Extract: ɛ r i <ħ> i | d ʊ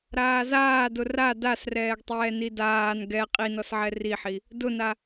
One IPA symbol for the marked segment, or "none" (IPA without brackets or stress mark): ħ